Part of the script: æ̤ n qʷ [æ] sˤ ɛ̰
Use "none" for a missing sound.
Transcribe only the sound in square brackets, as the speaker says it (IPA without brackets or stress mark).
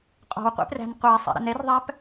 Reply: æ